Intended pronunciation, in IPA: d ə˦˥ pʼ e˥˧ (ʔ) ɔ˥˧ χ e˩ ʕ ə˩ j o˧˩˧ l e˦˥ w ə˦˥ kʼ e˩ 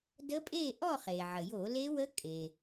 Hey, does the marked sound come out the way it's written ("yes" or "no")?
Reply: yes